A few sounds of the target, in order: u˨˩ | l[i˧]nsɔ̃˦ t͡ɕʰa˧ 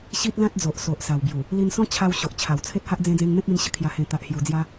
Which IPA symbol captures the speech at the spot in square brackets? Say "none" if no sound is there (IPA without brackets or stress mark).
i˧